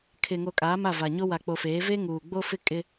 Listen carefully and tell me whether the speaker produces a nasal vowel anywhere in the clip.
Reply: no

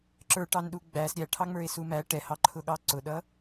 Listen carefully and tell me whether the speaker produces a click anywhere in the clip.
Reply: yes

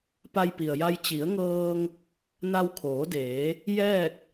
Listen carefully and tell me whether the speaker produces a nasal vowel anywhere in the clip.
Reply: no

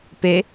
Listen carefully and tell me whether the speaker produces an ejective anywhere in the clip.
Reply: no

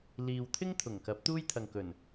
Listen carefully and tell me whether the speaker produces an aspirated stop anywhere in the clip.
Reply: yes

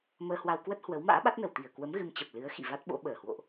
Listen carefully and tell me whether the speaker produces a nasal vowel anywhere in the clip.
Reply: no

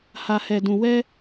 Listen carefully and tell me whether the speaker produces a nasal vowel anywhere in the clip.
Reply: yes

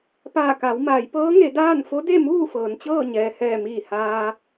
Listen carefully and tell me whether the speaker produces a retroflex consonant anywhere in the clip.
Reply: no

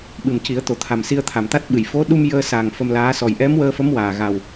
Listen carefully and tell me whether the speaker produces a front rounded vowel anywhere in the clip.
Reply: no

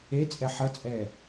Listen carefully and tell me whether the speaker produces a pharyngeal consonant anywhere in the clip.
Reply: yes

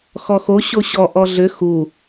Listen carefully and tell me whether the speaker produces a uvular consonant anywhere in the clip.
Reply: no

